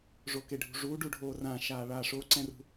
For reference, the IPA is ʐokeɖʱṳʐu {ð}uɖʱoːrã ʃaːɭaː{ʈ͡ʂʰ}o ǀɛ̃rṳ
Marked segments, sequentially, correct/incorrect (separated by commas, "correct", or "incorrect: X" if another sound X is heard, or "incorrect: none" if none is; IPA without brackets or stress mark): incorrect: ɖ, incorrect: ʂ